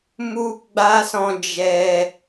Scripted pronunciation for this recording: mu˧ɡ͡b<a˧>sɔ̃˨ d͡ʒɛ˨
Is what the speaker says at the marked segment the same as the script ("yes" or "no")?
yes